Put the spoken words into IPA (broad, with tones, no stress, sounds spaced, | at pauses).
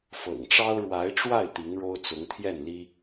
f ɤ̰˨˩ ŋ ʈ͡ʂ ɑ˥ ʊ̯ ɻ w a˧˥ ɪ̯ ʈ͡ʂ w a˥˩ ɪ̯ t̪ i˧˥ ŋ ɻ o˥ ʊ̯ t͡s ʊ˧˥ ŋ t̪ʰ j ɛ˥˩ n l i˥